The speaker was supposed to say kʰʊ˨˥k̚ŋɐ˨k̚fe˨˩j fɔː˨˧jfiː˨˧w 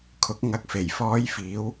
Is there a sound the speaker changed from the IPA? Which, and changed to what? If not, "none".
none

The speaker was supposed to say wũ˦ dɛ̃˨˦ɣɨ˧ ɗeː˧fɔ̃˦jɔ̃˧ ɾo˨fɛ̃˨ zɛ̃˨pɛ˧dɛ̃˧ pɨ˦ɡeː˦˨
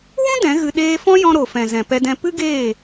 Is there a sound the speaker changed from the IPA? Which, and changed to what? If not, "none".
none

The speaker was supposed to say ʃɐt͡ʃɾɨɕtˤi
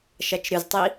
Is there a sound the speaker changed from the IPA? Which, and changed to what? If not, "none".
ɕ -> z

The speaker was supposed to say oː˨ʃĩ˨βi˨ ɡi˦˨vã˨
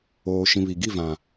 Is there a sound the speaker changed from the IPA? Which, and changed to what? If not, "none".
none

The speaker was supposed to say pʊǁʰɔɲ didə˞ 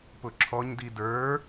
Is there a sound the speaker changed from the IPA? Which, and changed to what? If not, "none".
none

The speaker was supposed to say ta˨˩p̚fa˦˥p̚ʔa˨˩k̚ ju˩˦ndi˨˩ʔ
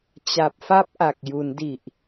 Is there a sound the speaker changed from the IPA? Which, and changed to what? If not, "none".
t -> t͡ɕ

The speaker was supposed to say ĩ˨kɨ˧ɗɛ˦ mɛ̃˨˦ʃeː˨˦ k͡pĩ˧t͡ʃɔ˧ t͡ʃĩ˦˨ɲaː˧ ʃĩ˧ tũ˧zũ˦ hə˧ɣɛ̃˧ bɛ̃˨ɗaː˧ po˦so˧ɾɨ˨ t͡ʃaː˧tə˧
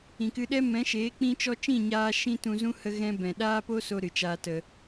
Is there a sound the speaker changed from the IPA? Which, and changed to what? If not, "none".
none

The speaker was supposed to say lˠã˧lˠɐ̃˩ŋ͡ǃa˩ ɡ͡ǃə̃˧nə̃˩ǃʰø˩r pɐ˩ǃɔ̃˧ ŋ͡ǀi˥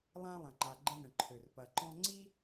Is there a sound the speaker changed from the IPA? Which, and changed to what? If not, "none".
none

